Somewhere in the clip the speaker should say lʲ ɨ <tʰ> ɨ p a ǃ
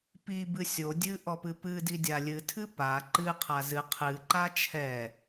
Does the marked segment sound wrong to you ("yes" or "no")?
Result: no